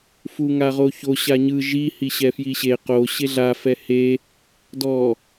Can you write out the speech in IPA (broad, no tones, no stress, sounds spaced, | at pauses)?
f u ŋ a ʁ o ç o ɕ a ɲ ɯ ʒ i h i ɕ ɛ f j i ɕ e q o ɕ e ɮ a f ɛ h e | d ɔ